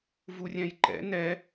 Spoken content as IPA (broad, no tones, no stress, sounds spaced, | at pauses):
v u rʲ ɛ̃ j ǃ ɛ̰ n ɛ